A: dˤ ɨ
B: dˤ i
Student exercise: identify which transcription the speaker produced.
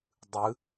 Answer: A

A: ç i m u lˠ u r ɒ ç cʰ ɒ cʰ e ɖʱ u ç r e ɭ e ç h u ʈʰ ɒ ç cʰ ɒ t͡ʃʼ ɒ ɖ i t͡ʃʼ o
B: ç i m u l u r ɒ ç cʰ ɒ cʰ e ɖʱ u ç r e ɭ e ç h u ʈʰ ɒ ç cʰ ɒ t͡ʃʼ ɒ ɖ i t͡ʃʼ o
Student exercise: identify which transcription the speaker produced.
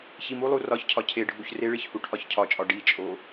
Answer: A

